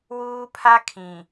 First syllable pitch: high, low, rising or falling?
high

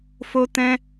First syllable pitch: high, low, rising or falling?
high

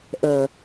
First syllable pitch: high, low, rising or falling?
low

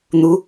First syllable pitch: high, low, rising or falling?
rising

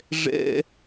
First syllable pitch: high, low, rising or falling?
high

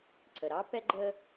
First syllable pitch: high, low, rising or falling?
low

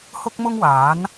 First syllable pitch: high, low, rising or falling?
high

